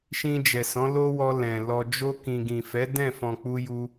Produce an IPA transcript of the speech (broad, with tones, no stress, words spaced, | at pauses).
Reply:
ʃĩ˧ d͡ʒɛ˨sɔ̃˨˦lo˦wɔ˧ lɛ̃˨ lɔ˨d͡ʒo˧ kĩ˨ɡĩ˨fɛ˨˦ dɛ̃˦˨fɔ̃˨k͡pu˧ju˧